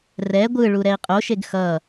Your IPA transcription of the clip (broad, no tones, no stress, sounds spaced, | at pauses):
r ɛ ɡʷ ɯ ɭ u ɾ ɛ i̯ qʼ o ʃ e ɡ x ʌ